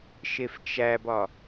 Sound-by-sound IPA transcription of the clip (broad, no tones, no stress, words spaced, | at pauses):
ʃeft͡ʃæbɒ